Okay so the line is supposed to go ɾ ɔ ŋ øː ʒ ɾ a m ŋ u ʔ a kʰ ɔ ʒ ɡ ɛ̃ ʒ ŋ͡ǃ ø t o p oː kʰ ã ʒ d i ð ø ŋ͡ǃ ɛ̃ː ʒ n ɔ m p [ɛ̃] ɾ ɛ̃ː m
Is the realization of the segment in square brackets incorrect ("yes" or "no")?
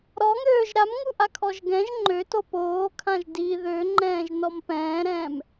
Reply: yes